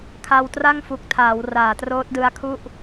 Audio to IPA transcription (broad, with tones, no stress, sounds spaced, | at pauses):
kʰ a˧ w t r a˥˩ ŋ f u˨˩ k̚ tʰ aː˩˦ w r aː˨˩ t r oː˦˥ t̚ d ɯ˦˥ a̯ kʰ u˥˩ ʔ